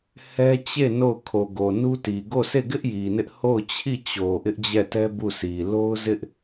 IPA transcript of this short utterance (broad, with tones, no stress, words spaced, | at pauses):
hɛ˦ t͡ɕe˦˨ no˦˨ʊ̯ kʰo˨ɡo˨ nu˦ ti˨ ɡo˦˨sʰe˦˨ɡɪ˦ʔ ji˨nɪ˦ʔ ho˦˨ʊ̯t͡ɕʰi˦˨t͡ɕo˨ ʔɪ˦ʔd͡ʑɛ˦˨tɛ˦ bu˦˨sʰi˨ lo˦ʊ̯zɪ˦ʔ